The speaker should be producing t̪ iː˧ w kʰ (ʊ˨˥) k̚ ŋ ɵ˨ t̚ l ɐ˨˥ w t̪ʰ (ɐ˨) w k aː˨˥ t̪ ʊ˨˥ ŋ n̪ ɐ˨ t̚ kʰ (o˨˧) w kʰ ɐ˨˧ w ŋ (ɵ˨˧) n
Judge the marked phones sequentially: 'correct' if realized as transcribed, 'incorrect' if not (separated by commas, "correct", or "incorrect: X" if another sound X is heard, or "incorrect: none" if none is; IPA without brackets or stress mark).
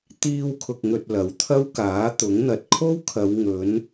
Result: incorrect: ʊ˨, incorrect: ɐ˥, incorrect: o˥, correct